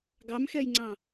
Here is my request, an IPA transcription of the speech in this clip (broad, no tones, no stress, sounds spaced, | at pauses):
ɡ ɑ m x ɛ j ŋ͡ǀ ɑ̃